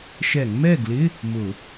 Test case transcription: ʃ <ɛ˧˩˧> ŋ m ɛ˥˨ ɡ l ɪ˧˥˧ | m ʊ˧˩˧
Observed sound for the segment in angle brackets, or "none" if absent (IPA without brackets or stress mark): ɛ˧˩˧